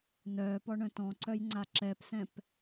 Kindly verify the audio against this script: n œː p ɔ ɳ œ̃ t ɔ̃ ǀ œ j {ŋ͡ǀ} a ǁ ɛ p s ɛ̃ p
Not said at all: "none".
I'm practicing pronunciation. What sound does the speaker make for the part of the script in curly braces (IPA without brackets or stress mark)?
ŋ͡ǀ